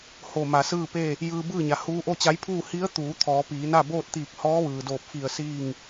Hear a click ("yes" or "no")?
no